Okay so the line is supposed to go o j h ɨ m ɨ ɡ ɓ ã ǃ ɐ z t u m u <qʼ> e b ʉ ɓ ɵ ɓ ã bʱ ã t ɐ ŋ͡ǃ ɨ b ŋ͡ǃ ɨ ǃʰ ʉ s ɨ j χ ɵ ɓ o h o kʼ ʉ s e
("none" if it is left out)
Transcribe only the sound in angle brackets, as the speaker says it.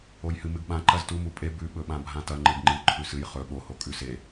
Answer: pʼ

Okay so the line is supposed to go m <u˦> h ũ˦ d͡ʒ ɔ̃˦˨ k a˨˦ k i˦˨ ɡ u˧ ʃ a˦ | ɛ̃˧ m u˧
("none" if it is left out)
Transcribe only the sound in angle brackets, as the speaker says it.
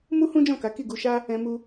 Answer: u˦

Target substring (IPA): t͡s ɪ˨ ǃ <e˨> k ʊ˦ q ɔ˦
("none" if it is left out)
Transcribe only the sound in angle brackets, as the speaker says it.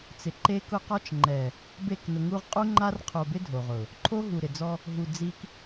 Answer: e˦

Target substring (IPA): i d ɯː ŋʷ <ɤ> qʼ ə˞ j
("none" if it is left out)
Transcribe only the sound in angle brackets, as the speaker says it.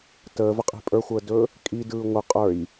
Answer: ɯ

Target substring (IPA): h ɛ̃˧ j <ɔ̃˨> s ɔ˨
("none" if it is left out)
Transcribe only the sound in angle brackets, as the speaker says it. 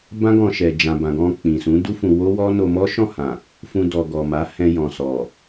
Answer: ɔ̃˨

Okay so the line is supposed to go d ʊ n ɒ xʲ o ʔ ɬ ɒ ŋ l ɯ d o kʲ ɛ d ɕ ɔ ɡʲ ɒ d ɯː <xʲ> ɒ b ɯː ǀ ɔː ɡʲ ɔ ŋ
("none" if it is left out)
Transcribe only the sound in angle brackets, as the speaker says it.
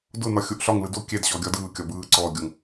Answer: kʲ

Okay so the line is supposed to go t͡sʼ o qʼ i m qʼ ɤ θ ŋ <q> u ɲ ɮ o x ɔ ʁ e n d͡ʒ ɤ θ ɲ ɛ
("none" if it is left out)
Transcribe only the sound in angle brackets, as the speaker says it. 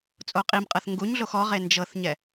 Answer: ɡ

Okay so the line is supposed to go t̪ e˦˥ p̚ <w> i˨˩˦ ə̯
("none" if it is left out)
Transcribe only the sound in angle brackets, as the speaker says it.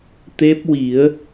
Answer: w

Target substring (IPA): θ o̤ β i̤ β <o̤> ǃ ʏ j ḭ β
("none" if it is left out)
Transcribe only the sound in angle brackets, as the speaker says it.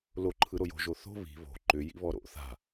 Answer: o̤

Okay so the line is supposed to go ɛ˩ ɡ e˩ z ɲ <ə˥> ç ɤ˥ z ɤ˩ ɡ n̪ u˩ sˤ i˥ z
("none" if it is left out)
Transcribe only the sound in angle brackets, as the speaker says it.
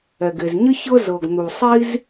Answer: ə˥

